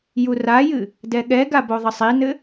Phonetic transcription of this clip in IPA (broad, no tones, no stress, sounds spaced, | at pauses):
j u r a j ɨ | d ɛ ɠ ɛ ɡ a b o ðˤ ɘ sˤ i n ɘ